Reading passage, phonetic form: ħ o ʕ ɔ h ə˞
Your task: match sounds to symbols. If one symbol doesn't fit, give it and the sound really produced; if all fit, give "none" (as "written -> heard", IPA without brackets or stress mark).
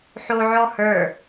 none